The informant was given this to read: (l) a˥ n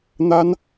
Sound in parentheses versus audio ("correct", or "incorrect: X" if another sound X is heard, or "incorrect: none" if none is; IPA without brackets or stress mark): incorrect: n̪